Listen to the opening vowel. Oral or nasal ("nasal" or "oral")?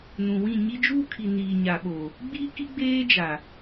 nasal